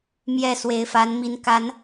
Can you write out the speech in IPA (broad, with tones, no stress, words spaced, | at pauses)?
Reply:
mjɛ˥˩ swe˧˥ɪ̯fa˧˥nmi˧˥n ka˧˥n